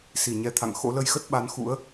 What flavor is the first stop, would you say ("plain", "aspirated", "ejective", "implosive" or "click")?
aspirated